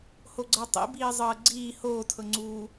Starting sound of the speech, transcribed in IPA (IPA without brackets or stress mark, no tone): h